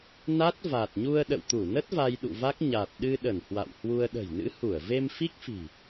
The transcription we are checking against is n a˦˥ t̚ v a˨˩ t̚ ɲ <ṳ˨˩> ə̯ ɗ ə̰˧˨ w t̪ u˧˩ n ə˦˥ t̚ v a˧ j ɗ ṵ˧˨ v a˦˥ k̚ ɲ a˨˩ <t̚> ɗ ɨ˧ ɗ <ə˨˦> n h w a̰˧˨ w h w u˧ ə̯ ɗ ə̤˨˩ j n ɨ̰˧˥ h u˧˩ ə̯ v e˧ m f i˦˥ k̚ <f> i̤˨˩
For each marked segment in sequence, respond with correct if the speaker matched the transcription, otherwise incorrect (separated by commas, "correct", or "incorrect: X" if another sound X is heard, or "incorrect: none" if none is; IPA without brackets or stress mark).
incorrect: u˧, correct, incorrect: ə˧˩, correct